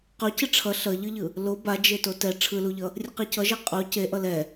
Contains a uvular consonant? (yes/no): yes